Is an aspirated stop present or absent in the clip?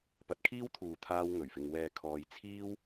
present